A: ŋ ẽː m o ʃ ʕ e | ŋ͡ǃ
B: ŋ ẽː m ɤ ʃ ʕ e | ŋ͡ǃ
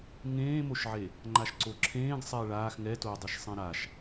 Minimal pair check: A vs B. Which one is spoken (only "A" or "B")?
A